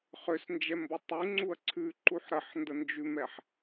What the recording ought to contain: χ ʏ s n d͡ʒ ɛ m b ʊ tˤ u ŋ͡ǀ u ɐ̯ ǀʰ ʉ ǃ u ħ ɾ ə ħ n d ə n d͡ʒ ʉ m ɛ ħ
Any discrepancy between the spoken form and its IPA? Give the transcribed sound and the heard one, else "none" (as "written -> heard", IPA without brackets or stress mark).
none